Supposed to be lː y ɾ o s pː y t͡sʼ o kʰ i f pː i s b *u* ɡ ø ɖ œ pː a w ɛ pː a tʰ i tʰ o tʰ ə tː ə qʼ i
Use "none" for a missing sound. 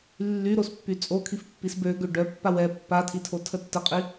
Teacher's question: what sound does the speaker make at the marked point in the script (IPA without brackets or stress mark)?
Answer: ø